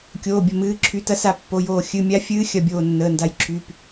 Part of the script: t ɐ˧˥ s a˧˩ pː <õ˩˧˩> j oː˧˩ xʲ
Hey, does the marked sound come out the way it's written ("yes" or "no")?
no